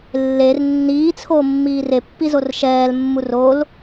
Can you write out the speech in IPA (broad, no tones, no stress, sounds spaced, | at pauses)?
lː e r nː iː t͡sʰ oː mː iː r e pː i z o r ʃ ɛː l mː u r o l